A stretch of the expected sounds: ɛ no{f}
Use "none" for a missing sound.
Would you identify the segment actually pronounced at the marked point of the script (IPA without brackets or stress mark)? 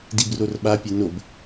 b